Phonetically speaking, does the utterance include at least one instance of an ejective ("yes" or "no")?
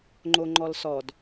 no